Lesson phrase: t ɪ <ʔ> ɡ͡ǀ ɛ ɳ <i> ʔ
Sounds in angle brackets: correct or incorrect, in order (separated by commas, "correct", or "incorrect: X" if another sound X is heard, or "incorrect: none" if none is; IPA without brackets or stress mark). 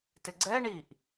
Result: incorrect: none, correct